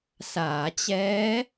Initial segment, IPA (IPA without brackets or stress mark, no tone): s